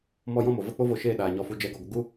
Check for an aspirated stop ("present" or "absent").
absent